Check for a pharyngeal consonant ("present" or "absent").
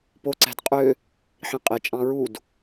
present